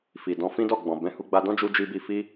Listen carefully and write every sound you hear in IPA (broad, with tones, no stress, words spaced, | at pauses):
fi˨dɔ̃˧ fĩ˦dɔ˦˨ ɡ͡bɔ̃˨bɛ̃˧hu˧ ɡ͡ba˧dɔ̃˦ d͡ʒu˧d͡ʒi˧bi˧fi˦